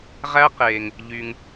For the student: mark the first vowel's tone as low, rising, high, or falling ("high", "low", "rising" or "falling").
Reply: high